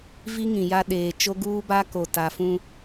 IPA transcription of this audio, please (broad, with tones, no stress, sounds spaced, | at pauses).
v i˦ ŋ ĩ˨ j a˦ ɗ eː˨ t͡ʃ o˦ ɡ uː˦ b a˦ k o˨ t a˨ f ũ˦